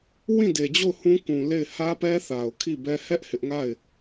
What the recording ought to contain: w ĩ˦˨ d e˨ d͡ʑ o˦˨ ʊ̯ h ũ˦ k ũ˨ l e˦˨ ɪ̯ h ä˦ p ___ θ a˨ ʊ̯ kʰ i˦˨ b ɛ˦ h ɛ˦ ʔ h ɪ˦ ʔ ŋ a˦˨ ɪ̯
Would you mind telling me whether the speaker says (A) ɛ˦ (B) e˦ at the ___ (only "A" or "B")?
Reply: A